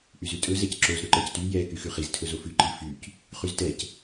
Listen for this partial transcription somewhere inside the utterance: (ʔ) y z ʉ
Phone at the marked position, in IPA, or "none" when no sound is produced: ʔ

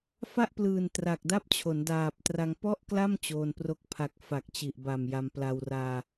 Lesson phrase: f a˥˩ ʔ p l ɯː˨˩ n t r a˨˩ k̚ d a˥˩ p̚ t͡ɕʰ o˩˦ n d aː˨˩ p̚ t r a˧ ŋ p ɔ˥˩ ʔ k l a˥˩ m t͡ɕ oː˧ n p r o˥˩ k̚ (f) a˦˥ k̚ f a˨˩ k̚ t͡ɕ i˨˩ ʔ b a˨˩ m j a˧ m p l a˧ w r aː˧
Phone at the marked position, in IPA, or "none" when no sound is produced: pʰ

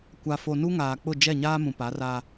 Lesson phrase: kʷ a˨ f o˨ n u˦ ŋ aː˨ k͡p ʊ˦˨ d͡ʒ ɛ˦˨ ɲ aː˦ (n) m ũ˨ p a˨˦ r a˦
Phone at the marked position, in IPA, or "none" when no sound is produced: none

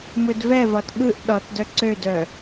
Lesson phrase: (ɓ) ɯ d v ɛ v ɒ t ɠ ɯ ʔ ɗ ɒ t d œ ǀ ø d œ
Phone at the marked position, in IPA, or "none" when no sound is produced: m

